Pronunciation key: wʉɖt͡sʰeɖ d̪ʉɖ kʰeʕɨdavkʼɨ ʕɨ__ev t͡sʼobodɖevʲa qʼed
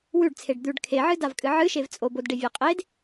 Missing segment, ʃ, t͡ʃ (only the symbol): ʃ